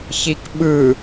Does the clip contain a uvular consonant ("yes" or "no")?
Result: no